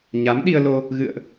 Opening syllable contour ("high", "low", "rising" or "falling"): rising